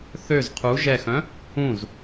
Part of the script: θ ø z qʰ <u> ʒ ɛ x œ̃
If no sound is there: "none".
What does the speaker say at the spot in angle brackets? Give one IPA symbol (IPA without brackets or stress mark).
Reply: u